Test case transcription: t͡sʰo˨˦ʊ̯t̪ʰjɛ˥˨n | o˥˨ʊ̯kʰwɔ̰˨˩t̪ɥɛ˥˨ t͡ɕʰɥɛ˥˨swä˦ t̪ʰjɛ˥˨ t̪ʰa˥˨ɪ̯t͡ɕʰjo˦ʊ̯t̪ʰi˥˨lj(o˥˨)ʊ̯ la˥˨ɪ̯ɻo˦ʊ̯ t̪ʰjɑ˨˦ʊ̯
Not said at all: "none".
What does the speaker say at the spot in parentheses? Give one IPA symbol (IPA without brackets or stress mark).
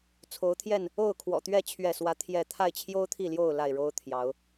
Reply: o˥˨